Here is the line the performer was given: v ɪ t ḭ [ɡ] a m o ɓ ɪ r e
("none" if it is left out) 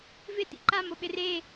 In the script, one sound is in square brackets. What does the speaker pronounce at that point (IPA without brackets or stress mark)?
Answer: ǃ